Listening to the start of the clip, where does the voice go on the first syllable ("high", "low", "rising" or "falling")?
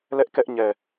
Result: high